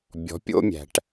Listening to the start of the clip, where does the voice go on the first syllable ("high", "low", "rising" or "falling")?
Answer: rising